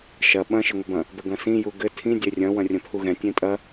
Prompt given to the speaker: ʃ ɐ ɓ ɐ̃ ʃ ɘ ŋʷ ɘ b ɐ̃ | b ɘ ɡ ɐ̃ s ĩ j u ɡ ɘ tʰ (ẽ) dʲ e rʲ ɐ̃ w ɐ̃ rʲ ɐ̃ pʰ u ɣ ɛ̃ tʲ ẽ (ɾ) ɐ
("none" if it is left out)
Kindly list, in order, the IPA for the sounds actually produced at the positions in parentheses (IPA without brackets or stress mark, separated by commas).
ĩ, tʼ